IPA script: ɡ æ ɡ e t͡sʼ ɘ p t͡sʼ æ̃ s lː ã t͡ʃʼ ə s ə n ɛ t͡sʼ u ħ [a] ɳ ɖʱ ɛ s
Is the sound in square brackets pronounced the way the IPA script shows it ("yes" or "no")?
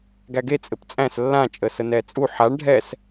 yes